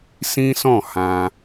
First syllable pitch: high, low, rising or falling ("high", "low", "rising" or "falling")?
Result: high